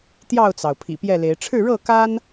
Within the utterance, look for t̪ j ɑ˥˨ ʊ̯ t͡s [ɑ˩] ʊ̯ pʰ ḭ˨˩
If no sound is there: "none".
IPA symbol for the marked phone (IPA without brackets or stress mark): ɑ˩